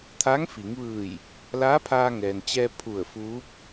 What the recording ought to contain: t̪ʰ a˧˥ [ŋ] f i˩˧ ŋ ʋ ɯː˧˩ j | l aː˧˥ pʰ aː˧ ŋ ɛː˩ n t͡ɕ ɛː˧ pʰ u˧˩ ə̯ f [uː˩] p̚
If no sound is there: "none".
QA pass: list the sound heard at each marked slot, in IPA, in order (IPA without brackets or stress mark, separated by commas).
ŋ, uː˧˥